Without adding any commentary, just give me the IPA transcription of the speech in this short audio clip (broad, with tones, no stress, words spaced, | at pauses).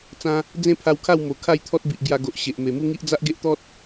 t͡sã˧ | d͡zẽ˦pʰa˧wkʰa˥˧w mo˨˩ kʰa˥˧jt̪ʰɔ˦t̚bi˨ʔ ɡja˧ɡo˨ʔ ɕe˨ʔ me˨˩mu˦ŋi˦ʔ d͡za˦ʔɡe˦ʔt̪ɔ˦t̚